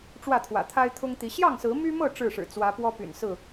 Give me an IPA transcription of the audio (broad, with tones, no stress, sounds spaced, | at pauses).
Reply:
ʈ͡ʂ w ä˥˨ t̪ʰ w ä̰˨˩ t̪ʰ a˦ ɪ̯ t̪ʰ ʊ˦ ŋ t̪ i˨˦ ɕ j ɑ˥˨ ŋ s ɹ̩˨˦ m y˦ m ɤ˥˨ ʈ͡ʂ ɻ̩˥˨ ʂ ɻ̩˨˩ t͡s w ä˨˦ p w ɔ˦ p y̰˨˩ n s ɹ̩˥˨